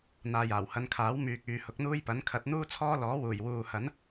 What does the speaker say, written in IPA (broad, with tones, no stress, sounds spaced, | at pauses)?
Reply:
n̪ aː˨ j aː˨˩ w h ɐ˧ n kʰ aː˨˥ w m yː˨ k̚ yː˨ h ʊ˨˥ k̚ n̪ uː˥ j p ɐ˨˥ n kʰ ɐ˨˥ t̚ n̪ uː˥ t͡sʰ ɔː˥ l ɔː˨˥ w uː˨˩ j w uː˨ h ɐ˨˥ n